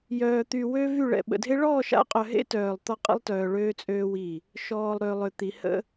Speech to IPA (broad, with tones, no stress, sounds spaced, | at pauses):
j œː˨ t̪ y˨ w ø˦ v y˦˨ ɭ ɛ̰˨ ɓ ə̰˨ dʱ e˦ ɭ ɔː˦˨ ʃ a̰˦ qʼ œ˨ ɦ ḛ˦ t œː˨ lˠ t̪ ɔ˦ qʼ ə̰˦ lˠ t œː˨ ɭ øː˦ t͡sʼ øː˦ w i˦˨ | ʃ ɔː˨ lˠ ɾ ø˨ lˠ ø˨ t̪ i˨ h ə̰˦